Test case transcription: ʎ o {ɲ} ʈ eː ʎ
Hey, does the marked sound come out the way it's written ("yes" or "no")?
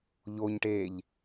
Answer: yes